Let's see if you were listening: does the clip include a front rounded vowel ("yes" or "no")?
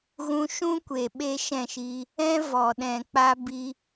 no